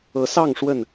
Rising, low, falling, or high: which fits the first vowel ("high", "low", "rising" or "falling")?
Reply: rising